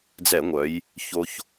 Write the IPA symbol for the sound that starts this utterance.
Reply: d͡z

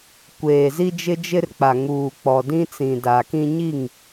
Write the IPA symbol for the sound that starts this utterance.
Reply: kʷ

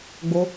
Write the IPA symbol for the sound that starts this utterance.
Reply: ɡ͡b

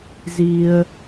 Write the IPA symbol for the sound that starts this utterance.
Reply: z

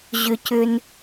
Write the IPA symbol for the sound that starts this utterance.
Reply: ʑ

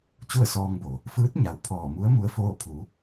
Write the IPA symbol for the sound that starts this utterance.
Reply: t͡ɕ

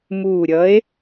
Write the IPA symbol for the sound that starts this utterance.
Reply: m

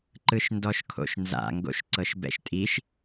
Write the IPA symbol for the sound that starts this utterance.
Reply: ǃ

